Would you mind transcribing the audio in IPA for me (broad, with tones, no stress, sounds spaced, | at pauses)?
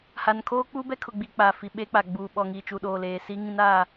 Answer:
h a˨ n kʰ oː˦ k͡p u˦ b ɛ˦ kʰ ʊ˨ ɡ͡b i˨ k͡p a˨ f i˨ ɓ eː˦ k͡p a˨ ɡ͡b uː˨ ɓ ɔ˨ ŋ iː˨ t͡ʃ u˨ ɗ oː˨ l eː˨ s i˦ ŋ ĩ˦ n a˦˨